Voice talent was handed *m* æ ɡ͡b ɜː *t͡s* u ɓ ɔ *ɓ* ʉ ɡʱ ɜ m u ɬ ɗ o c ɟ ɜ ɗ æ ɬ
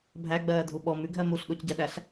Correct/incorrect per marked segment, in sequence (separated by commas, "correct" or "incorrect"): incorrect, incorrect, incorrect